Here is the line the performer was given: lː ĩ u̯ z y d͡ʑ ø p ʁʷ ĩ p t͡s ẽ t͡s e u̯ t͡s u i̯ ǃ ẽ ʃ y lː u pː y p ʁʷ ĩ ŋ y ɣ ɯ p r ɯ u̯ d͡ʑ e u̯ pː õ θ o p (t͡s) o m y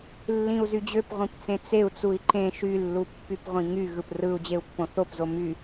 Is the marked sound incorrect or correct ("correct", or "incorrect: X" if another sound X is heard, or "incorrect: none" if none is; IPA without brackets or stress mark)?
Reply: incorrect: z